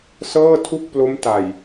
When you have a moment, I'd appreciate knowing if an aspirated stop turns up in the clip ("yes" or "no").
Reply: yes